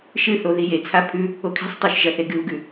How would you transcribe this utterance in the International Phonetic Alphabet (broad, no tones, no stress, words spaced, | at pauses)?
ʃɨθo ðijet͡sʰa pʰʉ | okʰi̤sˤtˤʉʃ ʒɐθeɡɨu̯ɡʉ